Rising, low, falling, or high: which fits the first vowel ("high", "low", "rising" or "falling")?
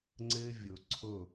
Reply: high